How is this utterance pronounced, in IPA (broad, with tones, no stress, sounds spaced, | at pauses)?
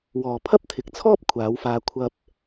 w ɔː˨ pʰ ɐ˥ p̚ t̪ʰ ɪ˨˥ k̚ t͡sʰ ɔː˥ p̚ kʷʰ aː˨˧ w f aː˧ kʷʰ ɐ˧ p̚